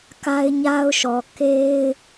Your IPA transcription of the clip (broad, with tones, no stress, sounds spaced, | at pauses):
k a˦ ɪ̯ ɲ a˦ ʊ̯ ʃ ɔ˨ k e˦ ɪ̯